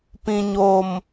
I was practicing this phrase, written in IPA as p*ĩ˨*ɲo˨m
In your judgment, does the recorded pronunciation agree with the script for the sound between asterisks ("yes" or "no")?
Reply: yes